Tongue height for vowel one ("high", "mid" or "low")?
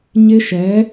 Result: high